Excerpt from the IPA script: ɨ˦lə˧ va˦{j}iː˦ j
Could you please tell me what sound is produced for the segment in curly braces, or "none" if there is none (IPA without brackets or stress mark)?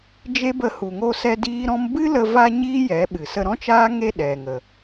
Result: ɲ